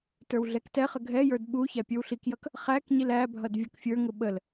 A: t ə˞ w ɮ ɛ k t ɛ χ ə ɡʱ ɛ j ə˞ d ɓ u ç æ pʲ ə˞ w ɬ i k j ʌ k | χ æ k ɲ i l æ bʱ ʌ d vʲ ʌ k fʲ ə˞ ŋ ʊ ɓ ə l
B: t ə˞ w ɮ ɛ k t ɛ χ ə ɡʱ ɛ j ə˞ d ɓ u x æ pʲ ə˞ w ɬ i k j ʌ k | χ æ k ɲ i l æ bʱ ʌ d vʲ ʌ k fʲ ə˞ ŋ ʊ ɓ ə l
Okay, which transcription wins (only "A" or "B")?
A